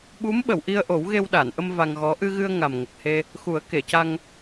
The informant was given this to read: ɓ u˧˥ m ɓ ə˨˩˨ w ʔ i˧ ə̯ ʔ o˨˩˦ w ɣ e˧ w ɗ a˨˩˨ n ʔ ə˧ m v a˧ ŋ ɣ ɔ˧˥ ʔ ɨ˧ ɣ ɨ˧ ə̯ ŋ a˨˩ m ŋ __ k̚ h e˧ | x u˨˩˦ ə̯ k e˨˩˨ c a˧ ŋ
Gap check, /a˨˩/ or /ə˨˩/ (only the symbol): ə˨˩